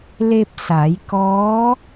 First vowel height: mid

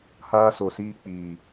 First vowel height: low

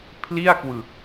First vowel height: high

